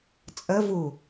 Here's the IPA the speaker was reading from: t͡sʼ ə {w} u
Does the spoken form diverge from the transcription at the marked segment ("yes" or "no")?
yes